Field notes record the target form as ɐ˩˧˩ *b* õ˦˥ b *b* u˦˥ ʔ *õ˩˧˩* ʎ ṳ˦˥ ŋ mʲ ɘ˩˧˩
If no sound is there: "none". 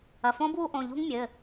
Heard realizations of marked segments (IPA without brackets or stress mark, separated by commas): f, w, õ˩˧˩